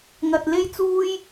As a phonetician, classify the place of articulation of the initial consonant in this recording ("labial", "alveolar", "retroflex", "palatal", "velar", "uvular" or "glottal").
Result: velar